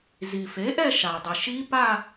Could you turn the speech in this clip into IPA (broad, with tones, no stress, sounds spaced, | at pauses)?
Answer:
z i˩ f e˩˥ ʔ ɛ˥˧ ʃ a˩ dˤ ɪ˩ ʃ i˦˥ p a˥˧